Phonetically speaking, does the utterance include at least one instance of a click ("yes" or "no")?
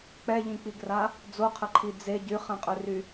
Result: yes